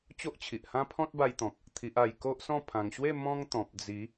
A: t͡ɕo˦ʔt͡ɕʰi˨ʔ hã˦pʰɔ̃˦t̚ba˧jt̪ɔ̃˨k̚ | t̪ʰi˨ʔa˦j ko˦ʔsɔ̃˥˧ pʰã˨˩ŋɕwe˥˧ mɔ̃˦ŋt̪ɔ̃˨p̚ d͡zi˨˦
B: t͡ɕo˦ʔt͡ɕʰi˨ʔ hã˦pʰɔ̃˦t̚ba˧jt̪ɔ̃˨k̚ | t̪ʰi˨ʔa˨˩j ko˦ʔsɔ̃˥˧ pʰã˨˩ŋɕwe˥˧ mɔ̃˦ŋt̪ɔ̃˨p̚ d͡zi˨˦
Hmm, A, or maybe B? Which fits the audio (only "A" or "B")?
B